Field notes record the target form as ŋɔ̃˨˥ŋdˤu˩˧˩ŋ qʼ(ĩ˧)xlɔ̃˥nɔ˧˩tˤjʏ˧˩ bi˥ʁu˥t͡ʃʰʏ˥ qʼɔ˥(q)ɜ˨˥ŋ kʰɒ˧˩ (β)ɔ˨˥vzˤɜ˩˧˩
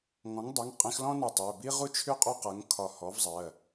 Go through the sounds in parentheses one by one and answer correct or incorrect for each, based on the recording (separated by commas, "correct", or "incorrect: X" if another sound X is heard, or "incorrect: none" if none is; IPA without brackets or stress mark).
correct, correct, incorrect: h